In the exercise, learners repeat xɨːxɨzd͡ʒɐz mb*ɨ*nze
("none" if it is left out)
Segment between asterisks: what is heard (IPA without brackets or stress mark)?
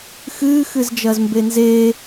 e